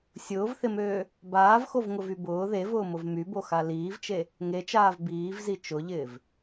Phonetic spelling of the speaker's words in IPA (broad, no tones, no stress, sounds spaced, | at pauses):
sʲ ʊː v θ ɪ m øː | b aː v x o v ŋ ʊ v y b ʊː ð e v ʊː m ʊ v m y b o x a l iː v t͡ʃ e | ŋ e t͡ʃ aː v b iː v z i t͡ʃ ʊ ʎ ɪː v